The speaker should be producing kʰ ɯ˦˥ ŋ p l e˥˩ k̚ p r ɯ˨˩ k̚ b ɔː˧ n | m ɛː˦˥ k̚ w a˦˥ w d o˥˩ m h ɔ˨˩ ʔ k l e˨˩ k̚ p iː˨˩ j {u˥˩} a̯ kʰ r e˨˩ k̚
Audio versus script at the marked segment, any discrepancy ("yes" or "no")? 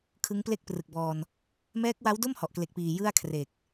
yes